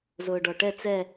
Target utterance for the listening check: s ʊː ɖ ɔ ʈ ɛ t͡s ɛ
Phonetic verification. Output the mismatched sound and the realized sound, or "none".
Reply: s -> z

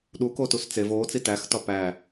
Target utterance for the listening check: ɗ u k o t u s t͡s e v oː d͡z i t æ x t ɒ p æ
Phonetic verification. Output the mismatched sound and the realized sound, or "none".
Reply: d͡z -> t͡s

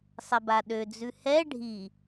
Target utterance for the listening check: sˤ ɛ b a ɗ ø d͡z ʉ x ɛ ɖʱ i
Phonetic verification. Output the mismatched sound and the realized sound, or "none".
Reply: x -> h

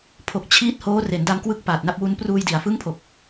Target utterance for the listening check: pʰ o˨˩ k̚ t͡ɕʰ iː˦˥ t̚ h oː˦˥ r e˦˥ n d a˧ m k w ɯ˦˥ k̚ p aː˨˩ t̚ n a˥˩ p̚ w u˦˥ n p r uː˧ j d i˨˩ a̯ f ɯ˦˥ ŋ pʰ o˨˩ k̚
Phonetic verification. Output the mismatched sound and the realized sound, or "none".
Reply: e˦˥ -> e˩˦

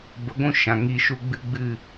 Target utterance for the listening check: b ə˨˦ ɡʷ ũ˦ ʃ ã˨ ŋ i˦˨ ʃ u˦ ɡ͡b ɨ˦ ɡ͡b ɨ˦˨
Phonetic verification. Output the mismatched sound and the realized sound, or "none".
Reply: none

